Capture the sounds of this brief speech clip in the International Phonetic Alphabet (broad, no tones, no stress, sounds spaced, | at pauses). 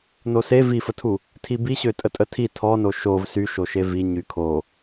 n o s e v i f ə tʰ u | tʰ i b i ɕ ø tʼ ə tʼ ə tʰ i tʰ ɔ n o ʃ o v s y ʃ o ʃ e v i ɲ y kʰ o